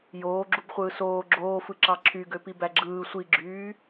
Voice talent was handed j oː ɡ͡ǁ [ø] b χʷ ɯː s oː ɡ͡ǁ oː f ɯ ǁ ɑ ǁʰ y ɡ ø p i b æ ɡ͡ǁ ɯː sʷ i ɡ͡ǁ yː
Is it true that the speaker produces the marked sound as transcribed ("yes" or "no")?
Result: no